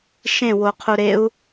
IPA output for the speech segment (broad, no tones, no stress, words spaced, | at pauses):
ʃẽwoqʰu ɾeu̯